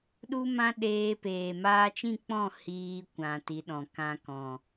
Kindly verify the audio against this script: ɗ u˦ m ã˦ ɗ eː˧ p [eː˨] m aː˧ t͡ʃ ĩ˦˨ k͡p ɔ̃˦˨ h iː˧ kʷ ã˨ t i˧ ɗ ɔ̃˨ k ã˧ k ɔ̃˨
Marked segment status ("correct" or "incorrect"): correct